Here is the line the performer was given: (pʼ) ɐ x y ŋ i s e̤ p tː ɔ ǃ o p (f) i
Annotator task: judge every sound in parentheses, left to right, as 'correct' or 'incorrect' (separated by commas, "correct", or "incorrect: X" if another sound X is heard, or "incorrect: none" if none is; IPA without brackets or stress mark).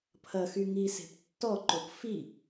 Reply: incorrect: pʰ, correct